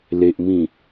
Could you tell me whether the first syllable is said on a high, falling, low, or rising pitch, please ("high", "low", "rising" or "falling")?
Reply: low